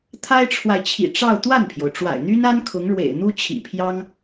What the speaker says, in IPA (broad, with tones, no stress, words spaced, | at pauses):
t̪ʰa˥ɪ̯ʈ͡ʂʰwa˨ɪ̯t͡ɕʰḭ˨˩ʈ͡ʂɑ˥˧ʊ̯ t̪wa˥˩npʰjo˩ʊ̯ʈ͡ʂwa̰˨˩ɪ̯ n̪y˥na˥n kʰʊ˧˥ŋɻwḛ˨˩ɪ̯ n̪u˥t͡ɕʰḭ˨˩pʰjɑ˥ŋ